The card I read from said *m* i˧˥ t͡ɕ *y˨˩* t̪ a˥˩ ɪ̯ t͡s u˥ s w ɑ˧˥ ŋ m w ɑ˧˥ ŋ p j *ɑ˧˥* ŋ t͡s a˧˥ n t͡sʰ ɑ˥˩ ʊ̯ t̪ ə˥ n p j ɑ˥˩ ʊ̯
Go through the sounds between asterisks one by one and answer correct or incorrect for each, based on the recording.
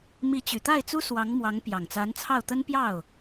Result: correct, correct, incorrect

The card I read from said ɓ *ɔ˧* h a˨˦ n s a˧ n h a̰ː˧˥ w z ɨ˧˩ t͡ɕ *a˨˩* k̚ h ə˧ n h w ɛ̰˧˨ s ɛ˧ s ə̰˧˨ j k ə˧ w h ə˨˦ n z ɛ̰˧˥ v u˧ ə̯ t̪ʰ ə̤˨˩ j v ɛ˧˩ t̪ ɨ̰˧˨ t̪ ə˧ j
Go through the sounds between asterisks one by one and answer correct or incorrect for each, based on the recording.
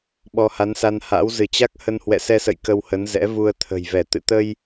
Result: correct, incorrect

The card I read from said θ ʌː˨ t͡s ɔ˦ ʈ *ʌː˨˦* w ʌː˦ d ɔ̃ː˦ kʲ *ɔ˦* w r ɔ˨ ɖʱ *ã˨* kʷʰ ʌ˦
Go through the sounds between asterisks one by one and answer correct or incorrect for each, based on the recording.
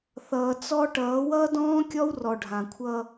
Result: correct, correct, correct

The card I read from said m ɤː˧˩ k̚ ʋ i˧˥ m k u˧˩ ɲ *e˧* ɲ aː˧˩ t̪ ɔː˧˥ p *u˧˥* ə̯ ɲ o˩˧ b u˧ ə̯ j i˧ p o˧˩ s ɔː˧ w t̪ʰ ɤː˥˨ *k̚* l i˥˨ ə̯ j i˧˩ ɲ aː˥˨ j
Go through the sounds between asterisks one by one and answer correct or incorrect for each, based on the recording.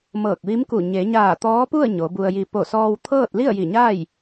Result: incorrect, incorrect, incorrect

